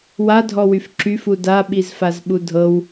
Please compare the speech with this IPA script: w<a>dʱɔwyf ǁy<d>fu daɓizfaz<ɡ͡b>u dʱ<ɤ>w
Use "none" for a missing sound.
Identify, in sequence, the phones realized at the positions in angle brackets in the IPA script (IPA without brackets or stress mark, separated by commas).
a, none, ɓ, ɤ